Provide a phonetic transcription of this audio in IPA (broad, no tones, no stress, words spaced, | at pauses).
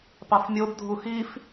pɑfmʲob dʱuxif